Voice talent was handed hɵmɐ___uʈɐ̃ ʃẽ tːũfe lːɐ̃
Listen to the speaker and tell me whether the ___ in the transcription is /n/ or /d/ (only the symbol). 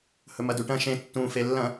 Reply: d